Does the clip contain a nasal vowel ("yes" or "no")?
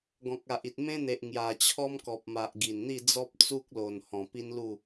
yes